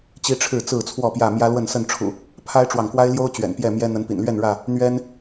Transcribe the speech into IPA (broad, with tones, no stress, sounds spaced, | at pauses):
t͡ɕ i˦ ʈ͡ʂʰ ɻ̩˥˨ t͡s ɹ̩˥˨ t͡sʰ w ɔ˥˨ p j ä˥˨ m j ä˦ l w ə˥˨ n s ə˥˨ n ʈ͡ʂʰ ṵ˨˩ | pʰ a˦ ɪ̯ ʈ͡ʂ w ɑ˨ ŋ k w a˦ ɪ̯ l j o˦ ʊ̯ t͡ɕ ɥ ɛ̰˨˩ n p j ɛ˥˨ m j ɛ˦ n̪ ə˨˦ n p ḭ˨˩ n l ɥ ɛ˥˨ n ɻ ä˥˨ | n̪ ɥ ɛ˦ n